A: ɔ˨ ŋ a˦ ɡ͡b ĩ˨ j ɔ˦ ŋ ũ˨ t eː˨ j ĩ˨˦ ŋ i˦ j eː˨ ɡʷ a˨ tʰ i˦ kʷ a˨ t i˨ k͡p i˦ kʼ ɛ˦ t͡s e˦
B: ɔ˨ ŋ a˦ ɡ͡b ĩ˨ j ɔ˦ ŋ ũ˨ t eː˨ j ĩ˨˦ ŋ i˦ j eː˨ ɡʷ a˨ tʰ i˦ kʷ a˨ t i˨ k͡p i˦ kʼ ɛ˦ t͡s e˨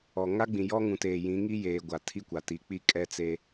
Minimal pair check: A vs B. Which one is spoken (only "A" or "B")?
A